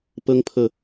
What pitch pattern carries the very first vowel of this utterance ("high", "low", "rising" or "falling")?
high